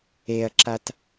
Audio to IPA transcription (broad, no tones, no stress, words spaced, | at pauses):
eɐ̯ǁat